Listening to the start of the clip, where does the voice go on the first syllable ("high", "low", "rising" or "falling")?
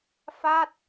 falling